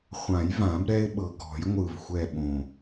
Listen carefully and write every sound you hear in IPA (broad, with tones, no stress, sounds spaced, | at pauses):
χʷ ã˨˩˦ j v ã˨˩˦ b ɾ ɛ˦ ɪ̯ ɓ ɤ˨˩ ɡ ɔ̤˨˩˦ j ŋʷ ɯ˨˩ v xʷ ɛ˨˩ ɓ õ˨˩